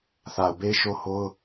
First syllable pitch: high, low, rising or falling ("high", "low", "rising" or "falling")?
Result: low